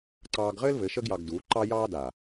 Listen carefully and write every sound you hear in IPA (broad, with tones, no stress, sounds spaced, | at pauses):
ǀ ɑː˧ ɡ ʁ ɘː˦ l v ɘ˨˦ ʃ ə˦ ɡ j ɑ˧ ɡ d uː˨˦ ǃ ɑ˦ j ɑː˦ d a˨